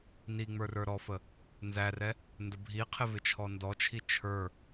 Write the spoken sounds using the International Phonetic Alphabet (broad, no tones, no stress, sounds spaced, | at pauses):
n i ŋ͡m ə˞ r ə˞ ɾ ɔ f ə | n z æ r ɛ | n d ə bʱ i qʰ ɪ v ɪ t͡ʃʰ ɔ n d ɔ t͡ʃʰ i t͡ʃʰ ə˞